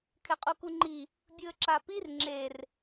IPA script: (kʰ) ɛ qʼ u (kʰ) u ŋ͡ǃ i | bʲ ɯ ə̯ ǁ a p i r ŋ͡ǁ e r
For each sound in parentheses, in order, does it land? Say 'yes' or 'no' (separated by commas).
yes, no